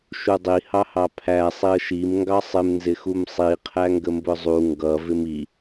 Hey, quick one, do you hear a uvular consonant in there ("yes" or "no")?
yes